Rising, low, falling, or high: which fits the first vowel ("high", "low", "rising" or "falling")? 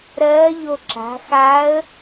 rising